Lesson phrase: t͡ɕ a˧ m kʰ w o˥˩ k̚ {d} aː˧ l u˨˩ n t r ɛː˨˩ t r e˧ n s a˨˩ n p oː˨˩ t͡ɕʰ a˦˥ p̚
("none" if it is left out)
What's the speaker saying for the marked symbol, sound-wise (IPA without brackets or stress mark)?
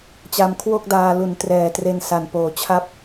d